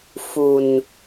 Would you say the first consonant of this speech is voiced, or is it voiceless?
voiceless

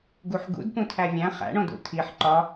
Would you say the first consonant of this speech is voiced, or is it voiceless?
voiced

